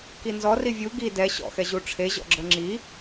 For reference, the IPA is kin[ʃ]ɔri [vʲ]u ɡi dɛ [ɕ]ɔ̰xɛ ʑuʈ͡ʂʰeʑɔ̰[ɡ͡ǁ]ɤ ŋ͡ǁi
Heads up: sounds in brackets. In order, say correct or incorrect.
incorrect: z, correct, correct, correct

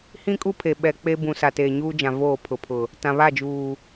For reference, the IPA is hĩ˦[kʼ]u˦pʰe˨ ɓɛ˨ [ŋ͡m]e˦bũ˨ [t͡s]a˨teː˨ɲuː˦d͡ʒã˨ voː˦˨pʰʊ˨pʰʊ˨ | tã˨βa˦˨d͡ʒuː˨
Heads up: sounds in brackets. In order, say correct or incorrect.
correct, incorrect: k͡p, incorrect: s

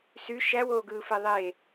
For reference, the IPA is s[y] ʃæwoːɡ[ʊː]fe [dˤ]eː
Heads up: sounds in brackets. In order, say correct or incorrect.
correct, incorrect: ɯː, incorrect: ðˤ

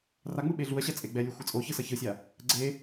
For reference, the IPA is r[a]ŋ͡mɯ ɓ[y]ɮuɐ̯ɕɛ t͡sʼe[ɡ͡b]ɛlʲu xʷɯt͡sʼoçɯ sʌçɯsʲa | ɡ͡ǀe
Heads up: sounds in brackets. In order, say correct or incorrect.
correct, incorrect: e, correct

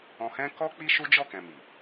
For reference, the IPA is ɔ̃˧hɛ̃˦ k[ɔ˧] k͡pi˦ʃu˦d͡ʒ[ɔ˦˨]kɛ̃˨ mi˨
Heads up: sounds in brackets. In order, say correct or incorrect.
incorrect: ɔ˦, correct

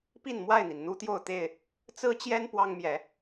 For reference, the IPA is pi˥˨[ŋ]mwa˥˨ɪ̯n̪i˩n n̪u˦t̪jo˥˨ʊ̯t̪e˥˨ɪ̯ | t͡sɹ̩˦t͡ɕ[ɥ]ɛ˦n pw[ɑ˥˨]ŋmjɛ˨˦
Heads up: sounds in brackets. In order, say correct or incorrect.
incorrect: n, incorrect: j, incorrect: ɑ˦

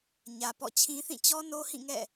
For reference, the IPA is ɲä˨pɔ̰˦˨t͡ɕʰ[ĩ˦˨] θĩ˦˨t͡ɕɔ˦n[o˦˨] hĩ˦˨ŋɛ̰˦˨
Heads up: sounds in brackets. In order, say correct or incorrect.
incorrect: ĩ˦, incorrect: o˦

